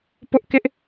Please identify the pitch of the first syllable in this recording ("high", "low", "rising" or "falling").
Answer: high